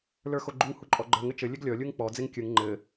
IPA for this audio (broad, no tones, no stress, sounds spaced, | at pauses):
l ə˞ x o ɡ͡ǃ u ŋ h u ǃʼ ɔ ɡ͡ǃ ə˞ ŋ ɘ t͡ʃ ɘ lʲ ɘ ɡ lʲ ɔ lʲ u ŋ k͡p ɔ d͡z e ŋ kʲ ɯ ŋ ŋ͡ǃ ɘ